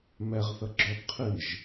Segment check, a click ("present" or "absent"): present